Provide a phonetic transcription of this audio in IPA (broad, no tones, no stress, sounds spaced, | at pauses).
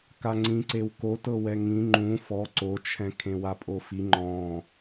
k a ŋ͡ǀ ĩ ǀ e w k o t ɤ w ɛ ŋ ĩ ŋ͡ǃ ũ f ɔ ǀ o t͡ʃʰ ɛ̃ kʰ ẽ w a pʼ o f i ŋ͡ǃ ɔ̃